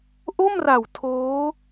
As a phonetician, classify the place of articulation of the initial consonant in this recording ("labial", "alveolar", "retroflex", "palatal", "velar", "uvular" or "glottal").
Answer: glottal